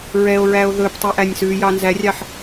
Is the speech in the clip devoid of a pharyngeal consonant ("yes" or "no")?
no